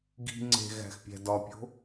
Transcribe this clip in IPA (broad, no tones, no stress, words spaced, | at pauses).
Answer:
ɡi̤ ŋ͡ǀe̤ɣæ̤xpʲæ̤ dɒpʲo̤